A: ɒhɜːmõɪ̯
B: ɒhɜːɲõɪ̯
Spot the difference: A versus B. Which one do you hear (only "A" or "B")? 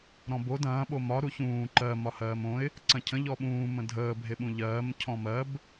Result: A